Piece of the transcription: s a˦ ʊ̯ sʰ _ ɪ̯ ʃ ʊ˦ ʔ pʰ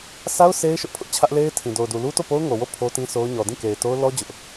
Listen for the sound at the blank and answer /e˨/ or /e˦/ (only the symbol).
e˦